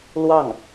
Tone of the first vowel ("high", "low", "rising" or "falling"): falling